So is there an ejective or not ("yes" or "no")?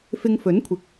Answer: no